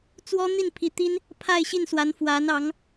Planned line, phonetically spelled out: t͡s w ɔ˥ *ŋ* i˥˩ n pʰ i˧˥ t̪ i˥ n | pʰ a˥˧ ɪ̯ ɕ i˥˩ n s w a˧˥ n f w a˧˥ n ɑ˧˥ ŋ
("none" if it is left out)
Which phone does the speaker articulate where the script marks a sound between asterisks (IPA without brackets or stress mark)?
n̪